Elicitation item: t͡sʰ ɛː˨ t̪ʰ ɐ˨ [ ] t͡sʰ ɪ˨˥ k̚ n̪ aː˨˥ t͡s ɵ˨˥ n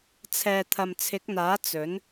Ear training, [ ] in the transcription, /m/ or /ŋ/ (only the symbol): m